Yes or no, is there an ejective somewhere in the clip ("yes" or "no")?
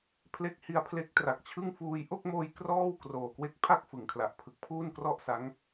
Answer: no